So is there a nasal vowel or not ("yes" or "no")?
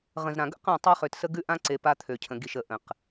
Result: yes